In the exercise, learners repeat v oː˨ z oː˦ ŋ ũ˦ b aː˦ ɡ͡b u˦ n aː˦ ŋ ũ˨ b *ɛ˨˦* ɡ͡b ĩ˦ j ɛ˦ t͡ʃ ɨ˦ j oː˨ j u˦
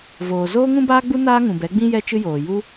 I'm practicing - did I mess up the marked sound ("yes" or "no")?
no